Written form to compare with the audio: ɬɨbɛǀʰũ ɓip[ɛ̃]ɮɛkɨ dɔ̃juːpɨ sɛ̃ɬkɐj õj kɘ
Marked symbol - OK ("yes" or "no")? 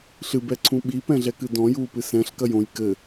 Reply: yes